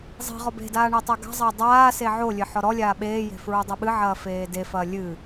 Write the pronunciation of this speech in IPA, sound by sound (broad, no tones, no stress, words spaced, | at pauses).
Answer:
zˤi̤ ʁɔbe̤daː ɳetˤaɡa̤zˤɐː dˤaː seʕolʲɘ ħɔɾɔlʲaː ɓeːje̤ fɹudˤɨɓɨʕɐː feːdefɐː lʲɨ